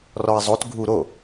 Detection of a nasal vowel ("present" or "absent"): absent